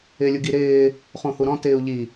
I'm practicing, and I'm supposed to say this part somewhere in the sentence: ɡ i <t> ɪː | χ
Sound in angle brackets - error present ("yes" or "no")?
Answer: yes